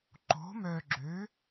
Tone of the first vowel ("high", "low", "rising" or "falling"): rising